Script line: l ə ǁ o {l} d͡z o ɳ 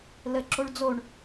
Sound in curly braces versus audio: incorrect: ɭ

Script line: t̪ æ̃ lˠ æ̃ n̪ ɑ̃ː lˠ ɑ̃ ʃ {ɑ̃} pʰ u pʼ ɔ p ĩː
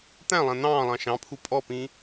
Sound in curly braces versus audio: correct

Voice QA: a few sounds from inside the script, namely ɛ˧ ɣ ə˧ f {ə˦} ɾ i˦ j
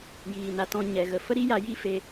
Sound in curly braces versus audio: correct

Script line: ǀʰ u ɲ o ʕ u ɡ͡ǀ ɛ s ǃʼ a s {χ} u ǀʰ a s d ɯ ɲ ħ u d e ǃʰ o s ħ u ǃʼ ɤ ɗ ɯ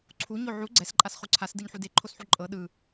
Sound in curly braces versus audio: correct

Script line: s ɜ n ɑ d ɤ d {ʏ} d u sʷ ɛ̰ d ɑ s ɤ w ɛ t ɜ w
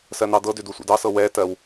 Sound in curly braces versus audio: correct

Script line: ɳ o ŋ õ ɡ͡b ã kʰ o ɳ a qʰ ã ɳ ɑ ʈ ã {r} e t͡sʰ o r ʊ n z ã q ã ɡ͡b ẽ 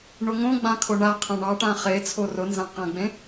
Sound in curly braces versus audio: incorrect: χ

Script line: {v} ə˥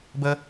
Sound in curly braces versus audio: incorrect: b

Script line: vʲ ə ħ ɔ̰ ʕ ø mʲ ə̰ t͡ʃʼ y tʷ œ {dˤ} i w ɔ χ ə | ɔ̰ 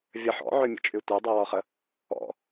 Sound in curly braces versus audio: correct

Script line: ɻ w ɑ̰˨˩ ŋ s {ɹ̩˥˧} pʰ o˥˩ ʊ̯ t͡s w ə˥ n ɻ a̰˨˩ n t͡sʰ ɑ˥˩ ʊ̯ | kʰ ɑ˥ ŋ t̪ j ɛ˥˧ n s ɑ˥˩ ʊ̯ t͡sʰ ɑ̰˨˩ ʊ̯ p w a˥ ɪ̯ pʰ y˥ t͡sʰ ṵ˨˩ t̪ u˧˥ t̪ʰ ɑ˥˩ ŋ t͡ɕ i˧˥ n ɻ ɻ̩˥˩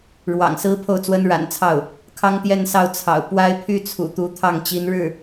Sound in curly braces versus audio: incorrect: ɹ̩˧˥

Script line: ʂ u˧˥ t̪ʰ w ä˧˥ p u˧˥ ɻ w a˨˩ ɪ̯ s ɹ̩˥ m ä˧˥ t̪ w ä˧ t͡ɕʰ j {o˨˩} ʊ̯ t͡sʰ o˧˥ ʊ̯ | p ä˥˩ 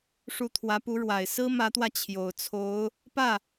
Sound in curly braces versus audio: correct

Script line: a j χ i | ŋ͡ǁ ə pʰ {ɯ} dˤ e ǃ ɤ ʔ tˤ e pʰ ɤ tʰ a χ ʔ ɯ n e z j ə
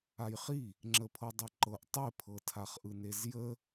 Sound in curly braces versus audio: incorrect: ɤ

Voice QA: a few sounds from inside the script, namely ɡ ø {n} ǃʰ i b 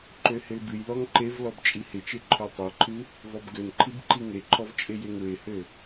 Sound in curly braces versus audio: correct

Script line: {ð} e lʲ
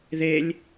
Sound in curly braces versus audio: correct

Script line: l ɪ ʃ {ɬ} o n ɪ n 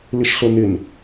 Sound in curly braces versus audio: correct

